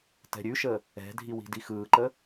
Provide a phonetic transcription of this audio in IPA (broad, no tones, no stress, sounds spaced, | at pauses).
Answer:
t ɛ̤ ɾʲ ʉ ʃ ə | ɛ̤ dʱ i w i̤ d i x ɯː ǃ ə